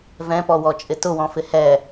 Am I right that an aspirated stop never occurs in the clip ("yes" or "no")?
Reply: yes